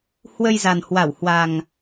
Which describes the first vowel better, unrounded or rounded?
unrounded